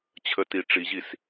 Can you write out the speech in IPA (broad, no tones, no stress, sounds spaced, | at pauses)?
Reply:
t͡ɕʰ ə t i ʈ͡ʂ i ʑ i s